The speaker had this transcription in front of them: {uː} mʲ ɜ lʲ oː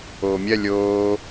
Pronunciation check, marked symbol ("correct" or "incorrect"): incorrect